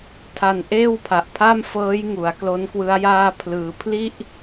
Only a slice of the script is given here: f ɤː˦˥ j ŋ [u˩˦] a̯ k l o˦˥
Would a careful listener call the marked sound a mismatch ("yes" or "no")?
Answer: no